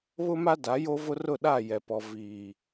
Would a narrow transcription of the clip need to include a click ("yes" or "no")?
no